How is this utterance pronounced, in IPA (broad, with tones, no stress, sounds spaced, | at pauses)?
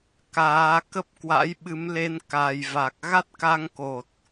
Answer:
k aː˨˦ k ə˦˥ p̚ k w a̰˧˥ j ɓ ɨ˨˦ m l e˧ n k a˨˩ j v a˨˩ k̚ ɣ a˦˥ t̚ k a˧ ŋ k o˨˩ t̚